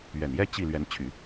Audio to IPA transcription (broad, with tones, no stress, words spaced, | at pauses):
ɥɛ˨˩njɛ˥ t͡ɕi˥˩ lɥɛ˧˥nt͡ɕʰy˨˩˦